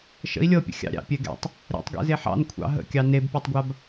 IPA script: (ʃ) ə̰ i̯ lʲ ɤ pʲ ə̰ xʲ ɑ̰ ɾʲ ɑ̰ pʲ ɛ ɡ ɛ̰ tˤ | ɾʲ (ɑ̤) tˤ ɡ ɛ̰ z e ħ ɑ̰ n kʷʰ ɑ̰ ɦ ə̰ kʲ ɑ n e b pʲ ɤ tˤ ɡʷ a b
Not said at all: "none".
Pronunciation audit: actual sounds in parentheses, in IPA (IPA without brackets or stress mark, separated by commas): ʃ, ɑ̰